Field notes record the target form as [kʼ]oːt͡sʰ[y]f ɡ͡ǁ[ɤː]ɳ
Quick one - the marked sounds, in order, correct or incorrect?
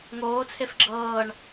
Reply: incorrect: ŋ, incorrect: e, correct

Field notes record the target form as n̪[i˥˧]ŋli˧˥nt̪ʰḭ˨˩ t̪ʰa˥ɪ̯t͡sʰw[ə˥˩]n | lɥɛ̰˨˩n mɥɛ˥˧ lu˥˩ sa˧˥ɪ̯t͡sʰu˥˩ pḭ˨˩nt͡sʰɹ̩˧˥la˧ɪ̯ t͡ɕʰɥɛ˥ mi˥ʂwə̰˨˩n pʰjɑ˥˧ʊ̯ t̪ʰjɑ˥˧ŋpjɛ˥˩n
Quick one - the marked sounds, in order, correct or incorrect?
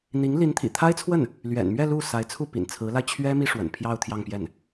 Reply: incorrect: i˧˥, correct

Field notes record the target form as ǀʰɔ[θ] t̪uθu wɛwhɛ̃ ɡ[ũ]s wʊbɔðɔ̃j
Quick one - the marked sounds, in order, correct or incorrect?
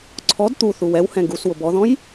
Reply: incorrect: d, incorrect: u

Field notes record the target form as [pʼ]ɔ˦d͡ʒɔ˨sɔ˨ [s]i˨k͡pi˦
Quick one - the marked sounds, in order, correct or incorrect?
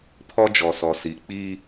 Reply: incorrect: pʰ, correct

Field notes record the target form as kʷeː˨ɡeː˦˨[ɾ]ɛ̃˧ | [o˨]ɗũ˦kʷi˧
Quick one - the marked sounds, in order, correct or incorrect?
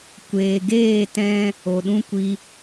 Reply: incorrect: t, correct

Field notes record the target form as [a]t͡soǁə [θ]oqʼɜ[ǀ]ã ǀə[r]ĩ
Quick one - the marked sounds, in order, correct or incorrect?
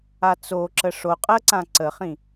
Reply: correct, incorrect: ʂ, correct, incorrect: χ

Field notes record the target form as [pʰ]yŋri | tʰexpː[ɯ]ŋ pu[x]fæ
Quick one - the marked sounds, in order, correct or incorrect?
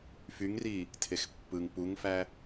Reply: incorrect: f, correct, incorrect: ŋ

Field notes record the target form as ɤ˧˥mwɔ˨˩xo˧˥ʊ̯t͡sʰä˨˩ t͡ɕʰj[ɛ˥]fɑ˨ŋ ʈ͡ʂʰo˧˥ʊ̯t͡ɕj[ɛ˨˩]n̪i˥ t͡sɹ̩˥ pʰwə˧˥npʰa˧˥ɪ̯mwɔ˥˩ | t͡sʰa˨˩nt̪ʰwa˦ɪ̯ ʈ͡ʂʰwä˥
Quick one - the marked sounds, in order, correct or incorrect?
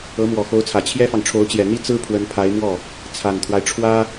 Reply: correct, correct

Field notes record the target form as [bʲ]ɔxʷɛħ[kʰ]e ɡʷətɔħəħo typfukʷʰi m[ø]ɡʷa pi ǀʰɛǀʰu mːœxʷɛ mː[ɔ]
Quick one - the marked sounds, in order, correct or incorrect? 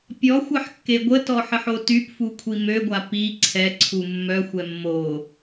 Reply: incorrect: pʲ, incorrect: kː, correct, incorrect: o

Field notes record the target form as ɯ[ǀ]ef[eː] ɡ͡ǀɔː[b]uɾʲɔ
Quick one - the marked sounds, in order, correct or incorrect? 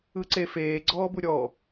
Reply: correct, correct, correct

